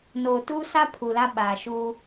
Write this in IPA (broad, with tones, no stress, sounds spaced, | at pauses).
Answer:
n oː˨ t uː˦ s a˦ pʰ u˨ l a˦ ɓ aː˨ ʃ u˦